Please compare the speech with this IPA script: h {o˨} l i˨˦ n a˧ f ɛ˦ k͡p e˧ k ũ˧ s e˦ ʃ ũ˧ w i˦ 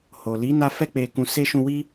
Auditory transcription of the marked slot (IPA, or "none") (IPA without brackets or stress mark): o˨